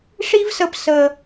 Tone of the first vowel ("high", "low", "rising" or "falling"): high